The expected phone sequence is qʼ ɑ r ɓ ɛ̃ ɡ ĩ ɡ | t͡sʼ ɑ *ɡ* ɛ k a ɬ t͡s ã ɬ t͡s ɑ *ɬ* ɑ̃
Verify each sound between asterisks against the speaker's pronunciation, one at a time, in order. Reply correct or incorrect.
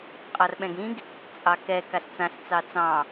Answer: incorrect, incorrect

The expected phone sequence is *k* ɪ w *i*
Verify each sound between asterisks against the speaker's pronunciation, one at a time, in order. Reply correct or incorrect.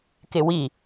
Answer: correct, correct

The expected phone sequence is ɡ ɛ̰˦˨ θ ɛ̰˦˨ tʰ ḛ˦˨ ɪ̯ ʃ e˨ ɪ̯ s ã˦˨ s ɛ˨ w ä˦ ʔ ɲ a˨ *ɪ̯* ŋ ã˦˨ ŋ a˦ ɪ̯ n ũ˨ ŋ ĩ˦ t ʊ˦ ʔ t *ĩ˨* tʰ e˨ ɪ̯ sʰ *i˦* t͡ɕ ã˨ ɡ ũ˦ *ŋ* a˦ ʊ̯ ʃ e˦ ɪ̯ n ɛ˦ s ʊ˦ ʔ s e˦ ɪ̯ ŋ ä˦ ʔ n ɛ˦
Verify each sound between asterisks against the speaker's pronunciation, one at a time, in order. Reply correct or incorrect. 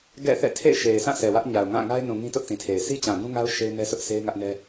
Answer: incorrect, correct, correct, correct

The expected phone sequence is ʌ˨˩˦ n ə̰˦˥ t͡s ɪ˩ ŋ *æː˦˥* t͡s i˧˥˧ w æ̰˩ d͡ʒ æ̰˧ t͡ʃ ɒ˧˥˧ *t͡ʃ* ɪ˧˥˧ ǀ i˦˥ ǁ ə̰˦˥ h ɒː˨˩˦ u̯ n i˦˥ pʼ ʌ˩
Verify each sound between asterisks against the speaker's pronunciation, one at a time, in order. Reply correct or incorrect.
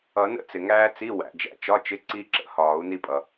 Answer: correct, correct

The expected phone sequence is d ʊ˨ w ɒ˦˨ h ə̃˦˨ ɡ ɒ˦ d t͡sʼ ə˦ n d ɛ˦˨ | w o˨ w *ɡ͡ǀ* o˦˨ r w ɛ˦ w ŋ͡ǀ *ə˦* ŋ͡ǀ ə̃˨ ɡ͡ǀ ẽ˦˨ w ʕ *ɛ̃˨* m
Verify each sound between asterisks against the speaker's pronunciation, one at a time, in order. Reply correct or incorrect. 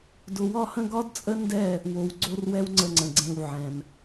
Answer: correct, incorrect, correct

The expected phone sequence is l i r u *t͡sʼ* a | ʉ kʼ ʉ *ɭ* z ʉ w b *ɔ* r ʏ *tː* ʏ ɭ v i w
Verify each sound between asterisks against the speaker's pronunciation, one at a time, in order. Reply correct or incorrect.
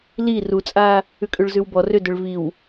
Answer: correct, correct, correct, incorrect

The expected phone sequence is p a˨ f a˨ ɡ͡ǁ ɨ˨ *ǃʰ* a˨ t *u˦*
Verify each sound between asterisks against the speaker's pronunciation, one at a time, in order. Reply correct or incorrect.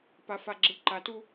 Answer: incorrect, correct

